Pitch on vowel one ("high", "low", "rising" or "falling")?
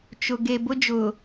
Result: low